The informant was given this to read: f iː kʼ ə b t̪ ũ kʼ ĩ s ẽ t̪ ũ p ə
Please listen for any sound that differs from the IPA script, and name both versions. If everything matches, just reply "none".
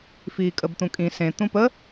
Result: none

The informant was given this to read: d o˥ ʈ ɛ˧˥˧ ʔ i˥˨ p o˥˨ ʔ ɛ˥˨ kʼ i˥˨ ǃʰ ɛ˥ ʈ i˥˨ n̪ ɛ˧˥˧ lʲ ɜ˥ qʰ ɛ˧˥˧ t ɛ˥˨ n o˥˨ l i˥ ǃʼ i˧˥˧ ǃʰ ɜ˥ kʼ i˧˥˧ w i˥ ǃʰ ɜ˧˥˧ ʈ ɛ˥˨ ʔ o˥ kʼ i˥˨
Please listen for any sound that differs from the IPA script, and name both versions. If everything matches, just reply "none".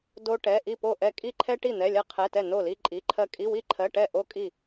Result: none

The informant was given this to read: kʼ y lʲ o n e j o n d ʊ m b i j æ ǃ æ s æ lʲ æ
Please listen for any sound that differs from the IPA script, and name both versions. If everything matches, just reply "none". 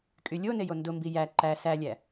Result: none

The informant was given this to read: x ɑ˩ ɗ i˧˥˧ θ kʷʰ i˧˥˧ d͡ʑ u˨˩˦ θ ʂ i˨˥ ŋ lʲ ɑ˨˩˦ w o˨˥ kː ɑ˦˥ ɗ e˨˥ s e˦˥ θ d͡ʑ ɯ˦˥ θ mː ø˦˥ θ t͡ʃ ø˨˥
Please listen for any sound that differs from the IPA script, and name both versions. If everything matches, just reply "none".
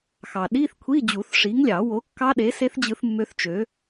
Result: none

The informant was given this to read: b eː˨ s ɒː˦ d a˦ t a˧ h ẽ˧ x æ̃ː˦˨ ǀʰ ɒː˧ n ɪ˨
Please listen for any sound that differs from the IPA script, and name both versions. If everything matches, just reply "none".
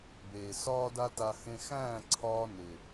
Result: none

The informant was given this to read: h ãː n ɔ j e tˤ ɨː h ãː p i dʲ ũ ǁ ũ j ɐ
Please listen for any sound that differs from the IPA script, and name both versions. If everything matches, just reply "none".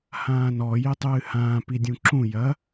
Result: none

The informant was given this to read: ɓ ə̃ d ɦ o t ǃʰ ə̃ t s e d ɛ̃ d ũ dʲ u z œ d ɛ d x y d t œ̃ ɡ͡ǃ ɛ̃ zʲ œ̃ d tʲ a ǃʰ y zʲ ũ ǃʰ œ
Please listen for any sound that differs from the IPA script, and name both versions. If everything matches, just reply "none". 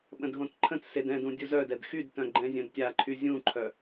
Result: o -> õ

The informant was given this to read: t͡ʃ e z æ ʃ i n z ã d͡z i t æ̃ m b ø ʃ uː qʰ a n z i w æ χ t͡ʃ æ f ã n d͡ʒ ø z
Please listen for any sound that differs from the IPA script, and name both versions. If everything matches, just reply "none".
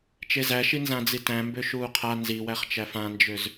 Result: none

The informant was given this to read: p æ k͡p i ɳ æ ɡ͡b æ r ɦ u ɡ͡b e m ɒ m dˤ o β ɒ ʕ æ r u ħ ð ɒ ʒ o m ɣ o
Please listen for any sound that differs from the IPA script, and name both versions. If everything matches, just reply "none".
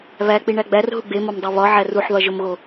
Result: p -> β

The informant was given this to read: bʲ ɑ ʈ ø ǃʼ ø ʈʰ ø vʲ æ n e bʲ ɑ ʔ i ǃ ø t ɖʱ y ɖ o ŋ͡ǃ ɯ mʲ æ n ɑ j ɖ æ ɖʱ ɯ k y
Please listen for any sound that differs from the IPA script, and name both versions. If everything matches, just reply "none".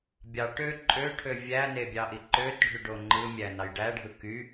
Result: none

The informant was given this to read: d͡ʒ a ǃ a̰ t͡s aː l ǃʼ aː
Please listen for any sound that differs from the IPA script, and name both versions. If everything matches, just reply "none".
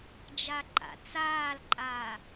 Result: none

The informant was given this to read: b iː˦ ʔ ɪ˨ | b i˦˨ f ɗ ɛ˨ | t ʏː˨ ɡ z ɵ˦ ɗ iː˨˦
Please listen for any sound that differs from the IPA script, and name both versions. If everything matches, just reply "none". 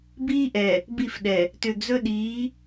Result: ɪ˨ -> ɛ˨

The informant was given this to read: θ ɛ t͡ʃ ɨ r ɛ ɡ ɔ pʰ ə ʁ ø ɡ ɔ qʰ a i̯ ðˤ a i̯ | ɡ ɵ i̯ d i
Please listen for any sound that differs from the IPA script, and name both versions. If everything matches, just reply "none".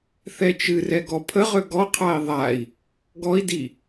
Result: ɵ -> ɔ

